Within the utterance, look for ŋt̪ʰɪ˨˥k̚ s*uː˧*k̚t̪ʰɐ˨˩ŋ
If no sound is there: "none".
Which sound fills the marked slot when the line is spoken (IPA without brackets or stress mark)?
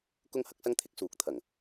uː˨